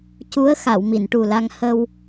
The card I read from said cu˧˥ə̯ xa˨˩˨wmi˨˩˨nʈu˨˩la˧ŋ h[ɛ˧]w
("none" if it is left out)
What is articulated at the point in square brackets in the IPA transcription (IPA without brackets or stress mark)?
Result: ə˧